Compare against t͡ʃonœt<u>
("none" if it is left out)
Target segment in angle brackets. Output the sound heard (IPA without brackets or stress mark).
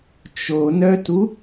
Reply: u